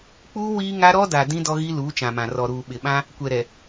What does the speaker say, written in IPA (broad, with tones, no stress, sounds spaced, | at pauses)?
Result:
k͡p uː˦ w iː˦ ŋ a˦ ɾ ɔ˦ d a˨ d ĩ˦ d ɔ˦ ɣ i˦ l uː˨˦ t͡ʃ ã˨ m ã˨ r ɔ˨ ɾ uː˨ ɓ ɪ˨ ɓ ã˦ | kʷ ɛ˨ ɾ ɛ˨